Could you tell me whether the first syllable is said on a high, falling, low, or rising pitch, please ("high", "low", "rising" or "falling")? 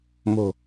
low